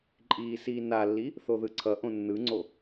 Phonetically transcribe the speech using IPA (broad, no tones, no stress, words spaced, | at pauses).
ǃʼiːsiːnalːi | θoðɯǀʰʌʔõ nːɯŋ͡ǀo